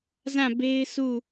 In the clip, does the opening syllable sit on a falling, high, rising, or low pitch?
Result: falling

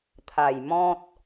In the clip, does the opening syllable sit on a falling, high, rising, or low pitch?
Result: low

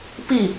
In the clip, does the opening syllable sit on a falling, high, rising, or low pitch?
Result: falling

